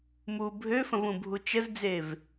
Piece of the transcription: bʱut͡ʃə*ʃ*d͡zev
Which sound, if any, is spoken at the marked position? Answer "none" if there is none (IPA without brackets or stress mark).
z